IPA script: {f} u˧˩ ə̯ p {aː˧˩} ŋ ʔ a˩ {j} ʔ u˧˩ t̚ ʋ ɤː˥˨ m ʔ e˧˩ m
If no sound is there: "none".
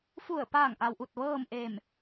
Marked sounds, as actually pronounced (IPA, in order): f, aː˧˩, w

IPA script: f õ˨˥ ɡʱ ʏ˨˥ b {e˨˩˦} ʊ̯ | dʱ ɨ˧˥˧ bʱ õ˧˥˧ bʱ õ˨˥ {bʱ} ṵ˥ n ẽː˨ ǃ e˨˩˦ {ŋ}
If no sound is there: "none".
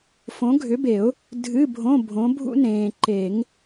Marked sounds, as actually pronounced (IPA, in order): e˨˩˦, bʱ, ŋ

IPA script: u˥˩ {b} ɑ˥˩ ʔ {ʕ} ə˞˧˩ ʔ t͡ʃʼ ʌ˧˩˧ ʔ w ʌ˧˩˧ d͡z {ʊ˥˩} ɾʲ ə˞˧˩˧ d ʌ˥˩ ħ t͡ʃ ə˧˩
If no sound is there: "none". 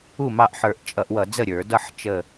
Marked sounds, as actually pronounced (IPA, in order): m, ħ, ə˥˩

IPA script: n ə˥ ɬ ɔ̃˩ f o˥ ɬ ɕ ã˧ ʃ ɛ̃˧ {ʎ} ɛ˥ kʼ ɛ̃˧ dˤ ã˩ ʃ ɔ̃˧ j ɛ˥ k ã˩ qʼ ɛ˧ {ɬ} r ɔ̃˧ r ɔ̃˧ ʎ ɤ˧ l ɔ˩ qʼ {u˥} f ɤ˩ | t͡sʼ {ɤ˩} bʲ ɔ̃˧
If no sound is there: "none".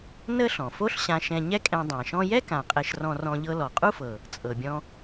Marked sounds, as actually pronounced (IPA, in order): ɲ, ʃ, u˥, ɤ˩

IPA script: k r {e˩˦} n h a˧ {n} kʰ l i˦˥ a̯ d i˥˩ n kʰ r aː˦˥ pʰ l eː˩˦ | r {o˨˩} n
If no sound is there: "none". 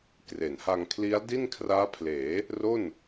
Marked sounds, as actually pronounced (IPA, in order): e˩˦, ŋ, o˥˩

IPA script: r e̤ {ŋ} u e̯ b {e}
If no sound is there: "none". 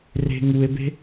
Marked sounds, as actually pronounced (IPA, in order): ŋ, e̤

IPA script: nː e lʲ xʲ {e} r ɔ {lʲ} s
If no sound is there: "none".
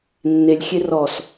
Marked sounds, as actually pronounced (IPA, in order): e, none

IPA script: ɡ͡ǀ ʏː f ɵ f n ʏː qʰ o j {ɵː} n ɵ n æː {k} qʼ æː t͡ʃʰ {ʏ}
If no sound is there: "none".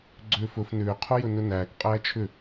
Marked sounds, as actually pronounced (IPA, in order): ɵ, k, ʏ

